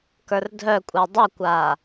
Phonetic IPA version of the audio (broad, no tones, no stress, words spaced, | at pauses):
kə˞rdʱœkʷʼɛ dˤukʷaː